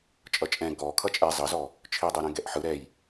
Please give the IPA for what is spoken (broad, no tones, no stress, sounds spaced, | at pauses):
t͡ʃʼ ʌ t͡ʃʼ ɛ̃ ɡ ɔ kʰ ʌ t͡ʃʼ ɛ zˤ ʌ z ɔ | t͡ʃʰ i dˤ ɛ ɾ ɛ̃ ɡ ɛ ʔ ħ ɯ ɾ ɛ j